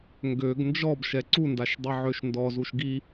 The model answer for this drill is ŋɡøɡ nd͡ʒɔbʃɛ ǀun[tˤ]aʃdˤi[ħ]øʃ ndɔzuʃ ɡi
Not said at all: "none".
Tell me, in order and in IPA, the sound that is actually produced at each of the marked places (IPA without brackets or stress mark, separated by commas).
d, ʕ